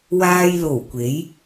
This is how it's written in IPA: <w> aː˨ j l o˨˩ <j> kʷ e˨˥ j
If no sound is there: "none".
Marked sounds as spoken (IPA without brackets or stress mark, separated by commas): w, w